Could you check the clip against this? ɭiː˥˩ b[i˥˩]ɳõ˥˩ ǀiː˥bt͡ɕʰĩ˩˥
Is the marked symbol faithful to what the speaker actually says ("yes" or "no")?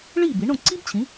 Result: no